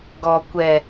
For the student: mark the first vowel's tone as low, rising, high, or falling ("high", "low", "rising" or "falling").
low